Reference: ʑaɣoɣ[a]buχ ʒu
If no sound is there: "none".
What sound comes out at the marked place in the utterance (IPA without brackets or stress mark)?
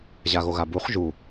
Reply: a